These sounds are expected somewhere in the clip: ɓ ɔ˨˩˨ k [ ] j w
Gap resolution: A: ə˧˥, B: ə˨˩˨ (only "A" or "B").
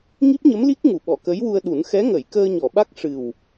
A